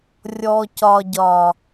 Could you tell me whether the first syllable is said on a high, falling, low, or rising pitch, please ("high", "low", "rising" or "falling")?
low